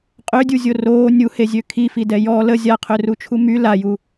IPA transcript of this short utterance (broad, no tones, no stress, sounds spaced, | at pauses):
qʼ ø dʲ u zʲ o r oː nʲ u h e zʲ ø kʰ i f i d ɛ j ɔ l ə zʲ a qʰ ø r u t͡ʃʰ u m y l a j u